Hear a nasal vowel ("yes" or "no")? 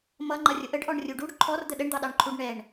no